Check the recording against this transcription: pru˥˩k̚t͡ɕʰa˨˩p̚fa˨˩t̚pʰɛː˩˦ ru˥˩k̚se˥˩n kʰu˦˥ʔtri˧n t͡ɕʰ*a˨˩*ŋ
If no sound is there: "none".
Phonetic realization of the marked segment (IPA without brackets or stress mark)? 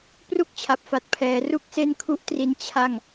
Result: a˥˩